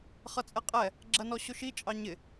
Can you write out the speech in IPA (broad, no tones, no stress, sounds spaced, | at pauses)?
χ ʌ t͡sʼ ɛ qʼ ɛ | ɡ͡ǁ ɜ n ɔ ɕ ʊ ʃ i t͡ʃʼ ɑ ɲ ɪ